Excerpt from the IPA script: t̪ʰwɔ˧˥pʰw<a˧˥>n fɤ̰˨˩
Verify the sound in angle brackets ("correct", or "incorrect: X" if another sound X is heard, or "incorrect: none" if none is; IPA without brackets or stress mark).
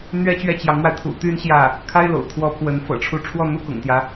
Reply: incorrect: ə˧˥